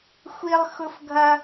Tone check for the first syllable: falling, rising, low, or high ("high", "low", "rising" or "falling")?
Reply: high